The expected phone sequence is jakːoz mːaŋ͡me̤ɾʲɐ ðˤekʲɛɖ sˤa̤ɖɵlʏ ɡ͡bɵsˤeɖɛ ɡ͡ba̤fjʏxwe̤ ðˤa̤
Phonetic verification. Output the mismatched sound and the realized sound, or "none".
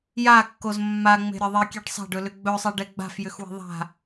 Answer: none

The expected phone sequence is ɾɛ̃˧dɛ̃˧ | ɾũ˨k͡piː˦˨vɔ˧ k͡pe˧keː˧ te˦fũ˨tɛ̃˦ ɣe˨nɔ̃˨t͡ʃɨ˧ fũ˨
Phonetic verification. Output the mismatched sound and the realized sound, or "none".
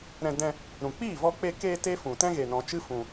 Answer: none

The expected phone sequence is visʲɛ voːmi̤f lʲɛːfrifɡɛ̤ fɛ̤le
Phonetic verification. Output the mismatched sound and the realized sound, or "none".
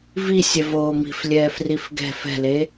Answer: none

